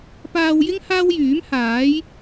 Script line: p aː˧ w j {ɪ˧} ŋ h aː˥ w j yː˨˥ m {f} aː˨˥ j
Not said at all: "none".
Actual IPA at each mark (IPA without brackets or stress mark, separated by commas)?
ɪ˥, h